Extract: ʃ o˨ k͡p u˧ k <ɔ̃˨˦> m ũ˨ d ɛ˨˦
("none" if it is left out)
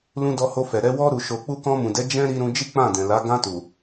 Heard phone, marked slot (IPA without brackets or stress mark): ɔ̃˧